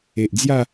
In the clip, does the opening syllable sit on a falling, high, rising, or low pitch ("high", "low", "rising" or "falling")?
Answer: low